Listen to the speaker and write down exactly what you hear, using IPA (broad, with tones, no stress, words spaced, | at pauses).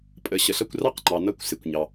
pʼə˩ ɕə˩ɬʌ˧kʷ rɑ˥qŋ͡ǃɑ˩ nʌ˧kʷsɪ˩kʷ ɲɑ˩